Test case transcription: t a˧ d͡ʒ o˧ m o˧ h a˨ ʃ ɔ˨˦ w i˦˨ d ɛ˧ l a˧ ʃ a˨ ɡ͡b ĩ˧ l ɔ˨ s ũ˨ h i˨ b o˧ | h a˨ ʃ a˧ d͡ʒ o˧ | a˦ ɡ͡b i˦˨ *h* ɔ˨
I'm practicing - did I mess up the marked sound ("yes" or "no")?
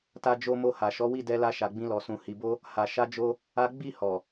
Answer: no